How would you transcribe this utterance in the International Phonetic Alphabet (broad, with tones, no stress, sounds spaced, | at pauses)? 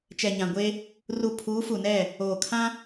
t͡ʃ ɛ˨ ɲ ã˨ ɡʷ e˦ | r u˦˨ pʰ uː˨˦ f u˨ n ɛ˦˨ | oː˨ kʰ ã˦